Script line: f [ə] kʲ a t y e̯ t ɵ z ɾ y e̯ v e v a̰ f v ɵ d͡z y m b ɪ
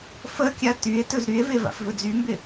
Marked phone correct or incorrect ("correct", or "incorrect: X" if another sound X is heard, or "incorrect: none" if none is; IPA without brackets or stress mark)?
correct